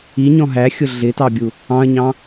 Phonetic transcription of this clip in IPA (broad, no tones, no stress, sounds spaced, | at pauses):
i ɲ ɔ̃ ɦ æ xʲ ʊ ɮ ɪ t ɑ bʲ u | ɑ̃ ɐ̯ ɲ ɑ̃